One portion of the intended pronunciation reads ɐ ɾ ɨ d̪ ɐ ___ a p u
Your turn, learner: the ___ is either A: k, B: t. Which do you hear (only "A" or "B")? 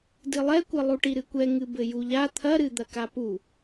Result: A